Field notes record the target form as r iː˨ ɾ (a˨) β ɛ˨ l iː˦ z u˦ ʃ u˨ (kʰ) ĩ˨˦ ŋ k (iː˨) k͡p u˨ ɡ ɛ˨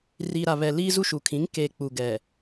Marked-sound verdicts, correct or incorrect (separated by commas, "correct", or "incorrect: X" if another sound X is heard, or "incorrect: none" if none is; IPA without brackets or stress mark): correct, correct, incorrect: eː˨